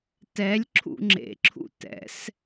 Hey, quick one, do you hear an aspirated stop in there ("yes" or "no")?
yes